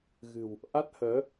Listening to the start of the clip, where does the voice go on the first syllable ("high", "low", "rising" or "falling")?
low